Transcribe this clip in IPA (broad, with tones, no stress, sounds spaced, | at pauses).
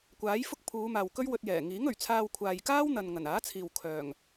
kʷ aː˨˥ j f ʊ˥ k̚ pʰ uː˨˧ m aː˨ w k ɵ˥ ɥ w ɵ˧ t̚ j ɛː˨˩ ŋ iː˨˥ ŋ ɵ˨˩ ɥ t͡sʰ aː˧ w kʷʰ aː˨ j k aː˥ w n̪ ɐ˨ n ŋ ɐ˨˩ n aː˨˥ t͡sʰ iː˨ w kʰ œː˨˩ ŋ